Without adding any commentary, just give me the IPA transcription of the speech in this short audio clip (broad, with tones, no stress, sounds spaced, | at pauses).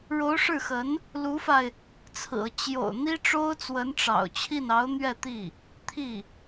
ɻ o˧˥ ʊ̯ ʂ ɻ̩˥˩ x ə˧˥ n | l u˧˥ f a˧ ɪ̯ | t͡sʰ ɹ̩˨˩ ɤ˦ t͡ɕ j o̰˨˩ ʊ̯ n̪ i˥ ʈ͡ʂ o˥ ʊ̯ t͡s w ə˧˥ n ʈ͡ʂ ɑ̰˨˩ ʊ̯ t͡ɕʰ i˥˩ n ɑ˧˥ ʊ̯ n̪ ɥ ɛ˥˧ t̪ i˥˩ | t̪ʰ i˥˩